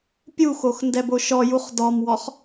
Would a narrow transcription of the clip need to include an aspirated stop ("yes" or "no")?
no